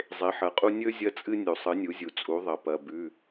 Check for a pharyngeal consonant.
present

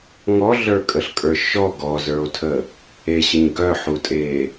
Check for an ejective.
present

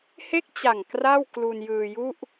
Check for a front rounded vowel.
absent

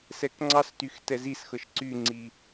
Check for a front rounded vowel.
present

